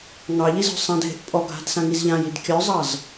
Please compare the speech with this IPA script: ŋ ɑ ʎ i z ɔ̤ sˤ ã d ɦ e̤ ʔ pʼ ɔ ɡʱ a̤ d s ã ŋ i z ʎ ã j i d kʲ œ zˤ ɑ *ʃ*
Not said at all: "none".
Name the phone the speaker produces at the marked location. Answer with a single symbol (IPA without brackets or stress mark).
z